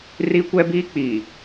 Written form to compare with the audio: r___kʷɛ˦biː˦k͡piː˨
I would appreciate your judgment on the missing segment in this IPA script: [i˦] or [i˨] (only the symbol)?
i˦